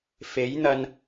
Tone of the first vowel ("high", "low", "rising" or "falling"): rising